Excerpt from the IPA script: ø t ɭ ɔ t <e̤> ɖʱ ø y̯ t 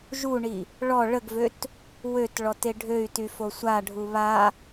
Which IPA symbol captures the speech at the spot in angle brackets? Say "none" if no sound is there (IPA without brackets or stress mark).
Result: e